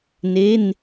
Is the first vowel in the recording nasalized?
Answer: no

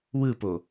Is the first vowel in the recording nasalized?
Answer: no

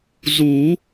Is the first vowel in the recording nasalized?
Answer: no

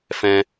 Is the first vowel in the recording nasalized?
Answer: yes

